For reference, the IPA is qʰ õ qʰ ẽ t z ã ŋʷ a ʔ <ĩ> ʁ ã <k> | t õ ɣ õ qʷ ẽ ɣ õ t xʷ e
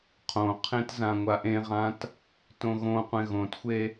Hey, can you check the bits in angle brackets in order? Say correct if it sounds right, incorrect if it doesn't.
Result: incorrect: ẽ, incorrect: t

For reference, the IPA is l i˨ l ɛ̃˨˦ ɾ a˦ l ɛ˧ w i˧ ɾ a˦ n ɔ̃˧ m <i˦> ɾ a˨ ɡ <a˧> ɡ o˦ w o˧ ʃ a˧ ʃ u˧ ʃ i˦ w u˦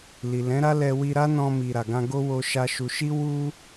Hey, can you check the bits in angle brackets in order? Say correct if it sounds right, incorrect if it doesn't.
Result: incorrect: i˨, incorrect: ã˧

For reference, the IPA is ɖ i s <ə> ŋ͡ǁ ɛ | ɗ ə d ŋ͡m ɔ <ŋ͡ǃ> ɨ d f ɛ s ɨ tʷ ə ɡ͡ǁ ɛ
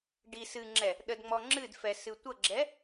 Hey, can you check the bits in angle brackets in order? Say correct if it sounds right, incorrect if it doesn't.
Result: incorrect: ɨ, incorrect: ŋ͡ǁ

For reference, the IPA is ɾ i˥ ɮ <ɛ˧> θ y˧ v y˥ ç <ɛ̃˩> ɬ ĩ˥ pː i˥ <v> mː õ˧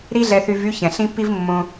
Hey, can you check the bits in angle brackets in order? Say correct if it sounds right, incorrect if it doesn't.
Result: correct, correct, correct

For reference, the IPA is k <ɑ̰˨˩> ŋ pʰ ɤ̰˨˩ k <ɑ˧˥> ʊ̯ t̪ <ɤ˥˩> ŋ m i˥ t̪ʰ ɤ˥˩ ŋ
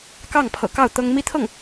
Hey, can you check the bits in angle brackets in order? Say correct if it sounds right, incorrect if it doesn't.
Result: incorrect: ɑ˥˩, incorrect: ɑ˥˩, incorrect: ɤ˥

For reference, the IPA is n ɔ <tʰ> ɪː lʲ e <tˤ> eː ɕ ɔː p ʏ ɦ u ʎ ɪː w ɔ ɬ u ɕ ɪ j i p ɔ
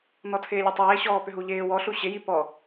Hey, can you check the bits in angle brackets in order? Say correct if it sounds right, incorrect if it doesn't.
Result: correct, correct

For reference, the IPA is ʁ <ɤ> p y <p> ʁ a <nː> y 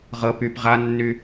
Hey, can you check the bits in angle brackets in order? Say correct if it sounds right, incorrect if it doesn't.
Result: correct, correct, correct

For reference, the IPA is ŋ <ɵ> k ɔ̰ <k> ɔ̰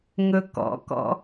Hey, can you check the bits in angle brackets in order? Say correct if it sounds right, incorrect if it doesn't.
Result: correct, correct

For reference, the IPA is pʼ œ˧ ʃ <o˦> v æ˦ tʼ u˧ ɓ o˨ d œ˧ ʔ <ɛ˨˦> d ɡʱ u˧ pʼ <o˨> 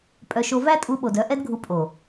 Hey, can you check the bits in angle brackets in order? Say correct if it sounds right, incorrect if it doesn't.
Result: incorrect: o˧, incorrect: ɛ˦, correct

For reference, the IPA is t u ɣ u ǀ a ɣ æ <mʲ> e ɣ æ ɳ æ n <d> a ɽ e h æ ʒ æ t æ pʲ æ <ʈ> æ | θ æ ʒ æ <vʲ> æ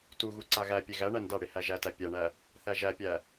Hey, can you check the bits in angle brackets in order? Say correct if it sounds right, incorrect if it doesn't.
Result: incorrect: pʲ, correct, incorrect: ɳ, incorrect: pʲ

